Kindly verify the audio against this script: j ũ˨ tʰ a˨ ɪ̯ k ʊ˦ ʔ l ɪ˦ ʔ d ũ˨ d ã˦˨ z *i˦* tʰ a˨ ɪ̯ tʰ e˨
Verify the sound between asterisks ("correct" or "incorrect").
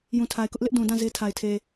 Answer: incorrect